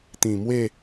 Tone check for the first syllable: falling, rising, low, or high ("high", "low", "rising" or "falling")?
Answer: low